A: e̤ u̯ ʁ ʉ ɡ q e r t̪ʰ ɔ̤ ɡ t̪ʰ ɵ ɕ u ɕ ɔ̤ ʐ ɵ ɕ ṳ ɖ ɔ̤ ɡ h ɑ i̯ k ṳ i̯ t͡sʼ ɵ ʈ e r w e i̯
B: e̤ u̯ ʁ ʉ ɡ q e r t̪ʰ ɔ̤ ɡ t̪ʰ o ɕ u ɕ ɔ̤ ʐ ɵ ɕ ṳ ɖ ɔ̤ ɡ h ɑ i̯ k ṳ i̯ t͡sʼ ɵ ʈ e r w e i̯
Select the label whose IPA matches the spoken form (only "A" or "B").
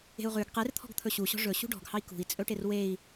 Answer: A